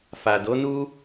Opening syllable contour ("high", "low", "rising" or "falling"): low